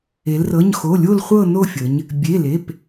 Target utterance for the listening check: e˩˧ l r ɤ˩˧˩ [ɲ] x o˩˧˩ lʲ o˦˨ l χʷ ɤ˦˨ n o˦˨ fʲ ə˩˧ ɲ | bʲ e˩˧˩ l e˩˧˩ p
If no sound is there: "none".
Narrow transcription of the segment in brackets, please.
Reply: ɲ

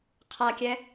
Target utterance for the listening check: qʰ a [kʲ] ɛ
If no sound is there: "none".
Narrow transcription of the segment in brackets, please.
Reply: kʲ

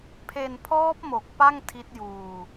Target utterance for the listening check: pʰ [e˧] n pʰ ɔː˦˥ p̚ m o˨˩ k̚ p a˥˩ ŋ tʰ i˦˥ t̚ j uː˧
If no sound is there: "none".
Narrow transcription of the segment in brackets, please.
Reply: e˧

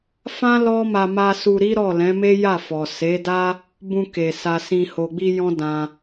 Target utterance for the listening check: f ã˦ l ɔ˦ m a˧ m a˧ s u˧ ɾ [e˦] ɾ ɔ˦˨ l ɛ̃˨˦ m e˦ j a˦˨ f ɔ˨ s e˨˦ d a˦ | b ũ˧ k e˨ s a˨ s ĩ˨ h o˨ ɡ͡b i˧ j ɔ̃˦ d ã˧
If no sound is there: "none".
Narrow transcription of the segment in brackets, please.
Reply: i˦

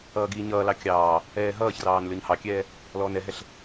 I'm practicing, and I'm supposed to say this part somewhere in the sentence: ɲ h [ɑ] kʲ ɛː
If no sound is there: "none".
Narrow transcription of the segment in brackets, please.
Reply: ɑ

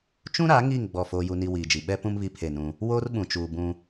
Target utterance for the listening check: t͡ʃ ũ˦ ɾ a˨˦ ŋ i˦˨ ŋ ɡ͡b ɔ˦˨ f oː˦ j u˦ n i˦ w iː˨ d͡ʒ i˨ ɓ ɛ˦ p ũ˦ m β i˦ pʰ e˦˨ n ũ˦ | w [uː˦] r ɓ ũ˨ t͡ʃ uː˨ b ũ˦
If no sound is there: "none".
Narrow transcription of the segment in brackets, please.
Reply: oː˦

